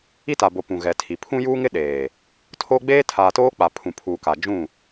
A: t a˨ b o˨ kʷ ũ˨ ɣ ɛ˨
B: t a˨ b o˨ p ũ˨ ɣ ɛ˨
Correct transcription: B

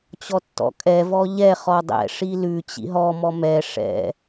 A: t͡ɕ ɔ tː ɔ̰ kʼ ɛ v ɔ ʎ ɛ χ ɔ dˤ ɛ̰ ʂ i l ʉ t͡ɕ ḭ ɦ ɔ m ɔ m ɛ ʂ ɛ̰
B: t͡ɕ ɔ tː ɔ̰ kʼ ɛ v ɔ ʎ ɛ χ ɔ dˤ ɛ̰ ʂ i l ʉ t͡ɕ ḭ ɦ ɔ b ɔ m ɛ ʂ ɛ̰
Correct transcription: A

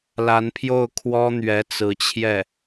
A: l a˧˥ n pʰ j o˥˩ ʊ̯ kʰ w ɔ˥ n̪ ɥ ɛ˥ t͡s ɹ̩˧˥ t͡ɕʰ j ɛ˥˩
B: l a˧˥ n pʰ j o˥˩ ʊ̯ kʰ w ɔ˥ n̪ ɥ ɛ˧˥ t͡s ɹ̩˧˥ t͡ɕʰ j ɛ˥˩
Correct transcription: B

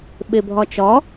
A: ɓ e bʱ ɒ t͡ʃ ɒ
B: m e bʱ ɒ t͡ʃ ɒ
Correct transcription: A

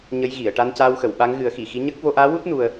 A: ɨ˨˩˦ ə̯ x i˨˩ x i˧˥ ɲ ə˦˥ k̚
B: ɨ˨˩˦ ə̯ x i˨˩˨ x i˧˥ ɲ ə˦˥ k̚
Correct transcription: B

